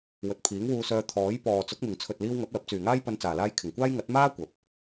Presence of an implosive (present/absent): absent